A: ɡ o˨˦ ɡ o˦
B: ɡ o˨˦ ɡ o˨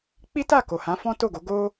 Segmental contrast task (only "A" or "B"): A